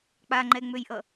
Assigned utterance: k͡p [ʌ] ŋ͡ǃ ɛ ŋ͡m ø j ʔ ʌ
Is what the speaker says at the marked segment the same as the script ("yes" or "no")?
no